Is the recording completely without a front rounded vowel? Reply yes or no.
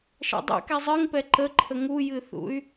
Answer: no